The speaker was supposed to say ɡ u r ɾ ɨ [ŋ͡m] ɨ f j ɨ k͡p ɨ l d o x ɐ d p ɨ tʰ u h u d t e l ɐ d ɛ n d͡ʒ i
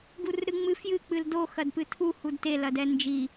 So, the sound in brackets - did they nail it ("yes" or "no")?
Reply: yes